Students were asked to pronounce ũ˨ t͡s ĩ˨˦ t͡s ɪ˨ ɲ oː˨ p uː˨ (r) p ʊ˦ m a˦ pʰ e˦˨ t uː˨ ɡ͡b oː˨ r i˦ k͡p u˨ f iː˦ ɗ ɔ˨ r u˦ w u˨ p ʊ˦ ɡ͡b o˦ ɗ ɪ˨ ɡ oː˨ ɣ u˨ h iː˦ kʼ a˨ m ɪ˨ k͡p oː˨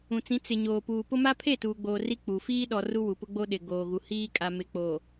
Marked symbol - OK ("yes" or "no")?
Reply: no